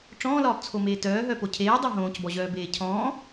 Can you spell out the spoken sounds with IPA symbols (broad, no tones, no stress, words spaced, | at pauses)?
ʈ͡ʂɔ̃ːlɒːpt͡sʰomeː tœːɦœpo cʰeːdˤœ ɦõːcbɔʑœːbeː cʰɔ̃ː